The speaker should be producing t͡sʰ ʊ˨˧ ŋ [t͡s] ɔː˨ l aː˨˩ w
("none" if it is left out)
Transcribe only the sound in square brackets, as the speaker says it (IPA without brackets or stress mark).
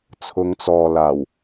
t͡s